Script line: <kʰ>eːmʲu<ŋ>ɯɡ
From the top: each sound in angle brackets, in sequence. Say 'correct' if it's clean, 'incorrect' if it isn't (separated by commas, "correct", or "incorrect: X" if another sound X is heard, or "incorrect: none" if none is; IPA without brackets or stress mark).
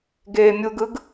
incorrect: ɡ, incorrect: ɡ